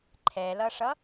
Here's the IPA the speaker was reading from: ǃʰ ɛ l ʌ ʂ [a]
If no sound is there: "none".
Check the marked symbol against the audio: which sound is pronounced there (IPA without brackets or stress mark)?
ʌ